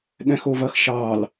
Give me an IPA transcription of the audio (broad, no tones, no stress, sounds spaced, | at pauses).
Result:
ɠ ɛ̃ x o v ɐ x ʃ ɑ l